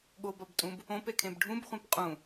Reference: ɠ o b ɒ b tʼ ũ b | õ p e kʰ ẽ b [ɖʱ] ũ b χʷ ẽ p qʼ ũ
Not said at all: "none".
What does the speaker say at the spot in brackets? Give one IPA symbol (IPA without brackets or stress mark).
ɖʱ